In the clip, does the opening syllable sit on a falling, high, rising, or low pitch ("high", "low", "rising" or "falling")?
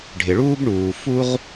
low